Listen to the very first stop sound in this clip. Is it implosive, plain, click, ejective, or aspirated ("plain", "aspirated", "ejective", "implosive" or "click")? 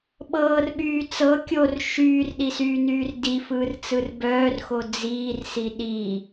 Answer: implosive